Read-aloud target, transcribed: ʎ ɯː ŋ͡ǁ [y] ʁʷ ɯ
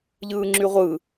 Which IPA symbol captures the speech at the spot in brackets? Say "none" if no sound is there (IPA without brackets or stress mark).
y